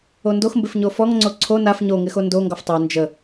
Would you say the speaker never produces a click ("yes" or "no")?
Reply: no